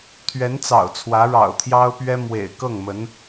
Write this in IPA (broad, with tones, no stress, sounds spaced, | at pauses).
t̪ʰ ɥ ɛ˧˥ n t͡s ɑ̰˨˩ ʊ̯ t͡sʰ w ä˧˥ ɻ ɑ̰˨˩ ʊ̯ t̪ʰ j ɑ˥ ʊ̯ p ɥ ɛ˥ m w ḛ˨˩ ɪ̯ k ɤ˥˩ ŋ m ə˧˥ n